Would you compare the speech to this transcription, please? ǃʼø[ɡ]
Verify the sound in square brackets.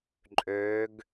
correct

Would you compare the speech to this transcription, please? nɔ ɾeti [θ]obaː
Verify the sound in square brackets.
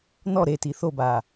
correct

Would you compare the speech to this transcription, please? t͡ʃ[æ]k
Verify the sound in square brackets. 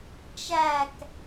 correct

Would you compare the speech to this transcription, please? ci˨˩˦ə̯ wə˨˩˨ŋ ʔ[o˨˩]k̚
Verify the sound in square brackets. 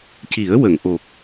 correct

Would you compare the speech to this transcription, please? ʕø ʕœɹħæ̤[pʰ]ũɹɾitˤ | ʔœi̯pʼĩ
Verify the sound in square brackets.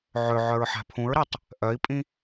correct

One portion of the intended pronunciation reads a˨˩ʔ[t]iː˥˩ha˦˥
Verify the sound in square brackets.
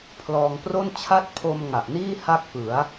incorrect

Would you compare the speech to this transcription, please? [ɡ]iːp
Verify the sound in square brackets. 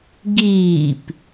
correct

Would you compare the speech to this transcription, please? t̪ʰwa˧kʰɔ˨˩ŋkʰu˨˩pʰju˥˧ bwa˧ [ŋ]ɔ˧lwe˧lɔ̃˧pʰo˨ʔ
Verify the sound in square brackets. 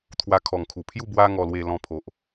correct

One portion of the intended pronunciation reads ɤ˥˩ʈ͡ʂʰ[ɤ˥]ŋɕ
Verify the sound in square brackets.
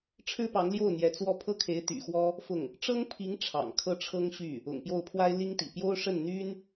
correct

